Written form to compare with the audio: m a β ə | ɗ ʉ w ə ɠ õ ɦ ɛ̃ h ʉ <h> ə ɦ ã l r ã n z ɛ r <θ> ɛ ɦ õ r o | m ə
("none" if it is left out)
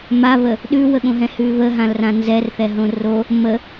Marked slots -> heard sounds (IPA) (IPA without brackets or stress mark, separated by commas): β, θ